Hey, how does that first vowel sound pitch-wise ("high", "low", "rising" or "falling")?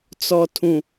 low